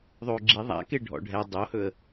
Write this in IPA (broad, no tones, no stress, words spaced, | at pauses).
ðˤoːɡ͡ǁi ðˤa̰ke ɖʱɔ̰ɖʱɛ dˤohɵə̯